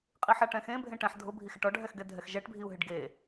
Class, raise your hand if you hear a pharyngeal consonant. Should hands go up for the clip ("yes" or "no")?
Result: yes